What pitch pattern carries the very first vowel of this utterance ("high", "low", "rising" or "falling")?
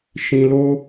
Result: high